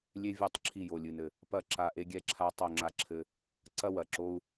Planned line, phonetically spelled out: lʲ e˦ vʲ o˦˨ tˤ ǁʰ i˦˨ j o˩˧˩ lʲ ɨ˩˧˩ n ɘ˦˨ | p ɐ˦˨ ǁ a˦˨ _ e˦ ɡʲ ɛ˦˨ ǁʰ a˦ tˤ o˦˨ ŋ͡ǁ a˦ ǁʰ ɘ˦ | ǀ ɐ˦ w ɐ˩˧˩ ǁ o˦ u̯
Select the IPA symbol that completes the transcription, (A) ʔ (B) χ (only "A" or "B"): A